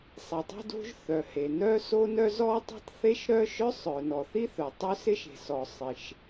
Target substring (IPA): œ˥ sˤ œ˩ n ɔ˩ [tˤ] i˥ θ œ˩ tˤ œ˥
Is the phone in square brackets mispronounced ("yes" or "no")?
yes